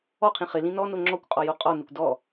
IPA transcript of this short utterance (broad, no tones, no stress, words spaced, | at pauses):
ɔqʰĩ χɪlĩ nɔno ŋ͡ǁɔkʷqʼɔjo qʼɔnɪkʷ dɔ